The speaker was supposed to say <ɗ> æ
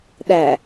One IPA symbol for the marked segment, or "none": ɗ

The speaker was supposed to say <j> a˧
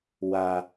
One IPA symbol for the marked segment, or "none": w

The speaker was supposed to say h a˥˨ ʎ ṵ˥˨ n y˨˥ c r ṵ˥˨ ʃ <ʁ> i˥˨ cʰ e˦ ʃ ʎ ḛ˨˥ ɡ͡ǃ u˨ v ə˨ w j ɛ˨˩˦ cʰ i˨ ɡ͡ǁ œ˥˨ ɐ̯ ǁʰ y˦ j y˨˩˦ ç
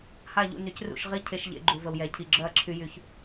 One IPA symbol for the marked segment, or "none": ʁ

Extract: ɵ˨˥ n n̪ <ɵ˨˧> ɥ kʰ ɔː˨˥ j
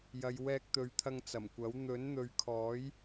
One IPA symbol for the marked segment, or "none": ɵ˨˧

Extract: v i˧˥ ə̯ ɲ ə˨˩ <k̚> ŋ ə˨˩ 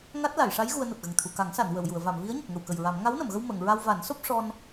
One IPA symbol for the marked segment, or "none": k̚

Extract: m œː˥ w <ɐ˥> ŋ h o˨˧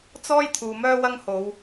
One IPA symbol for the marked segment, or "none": ɐ˥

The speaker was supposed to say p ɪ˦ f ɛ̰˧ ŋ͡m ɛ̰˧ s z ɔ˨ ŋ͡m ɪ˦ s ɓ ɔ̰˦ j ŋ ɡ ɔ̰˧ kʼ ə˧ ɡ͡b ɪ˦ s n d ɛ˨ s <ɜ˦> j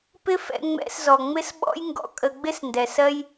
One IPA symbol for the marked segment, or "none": ɜ˦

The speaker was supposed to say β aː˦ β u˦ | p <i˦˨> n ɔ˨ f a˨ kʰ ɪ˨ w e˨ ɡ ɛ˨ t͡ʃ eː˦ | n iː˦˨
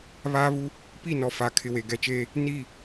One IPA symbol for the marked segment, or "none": i˦˨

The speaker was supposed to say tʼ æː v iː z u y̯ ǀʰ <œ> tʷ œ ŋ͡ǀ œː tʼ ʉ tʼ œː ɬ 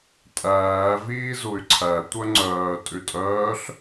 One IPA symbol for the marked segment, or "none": æ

